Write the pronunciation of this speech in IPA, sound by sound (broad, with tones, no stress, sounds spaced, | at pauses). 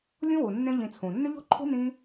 lʲ õ˦ w u˨ nː ẽ˦ ʎ ĩ˧ t͡sʰ ũ˨ nː ʏ˦ ʎ o̤˦ ǃʰ ṳ˦ n ĩ˦